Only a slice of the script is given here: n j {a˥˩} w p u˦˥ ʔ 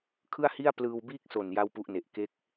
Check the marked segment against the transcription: correct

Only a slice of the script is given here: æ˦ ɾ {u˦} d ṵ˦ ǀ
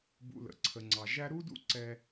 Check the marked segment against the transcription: correct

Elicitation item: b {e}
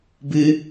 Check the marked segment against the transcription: incorrect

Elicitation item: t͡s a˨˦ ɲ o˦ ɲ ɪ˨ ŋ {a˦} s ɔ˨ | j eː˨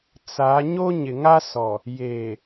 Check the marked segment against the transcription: correct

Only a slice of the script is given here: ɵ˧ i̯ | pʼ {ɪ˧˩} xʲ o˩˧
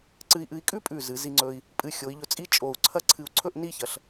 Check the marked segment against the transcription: incorrect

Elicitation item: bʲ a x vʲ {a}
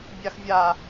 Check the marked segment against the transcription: correct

